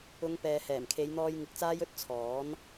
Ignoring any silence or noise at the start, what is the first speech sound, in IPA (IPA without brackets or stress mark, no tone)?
ʊ